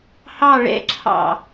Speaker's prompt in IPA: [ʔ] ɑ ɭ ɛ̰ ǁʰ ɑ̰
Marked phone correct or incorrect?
incorrect